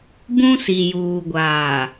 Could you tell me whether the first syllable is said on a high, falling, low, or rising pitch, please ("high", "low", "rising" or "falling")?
high